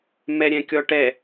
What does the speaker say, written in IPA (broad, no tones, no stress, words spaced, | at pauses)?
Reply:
mɛɾʲɛ̃kʲɔʈɛ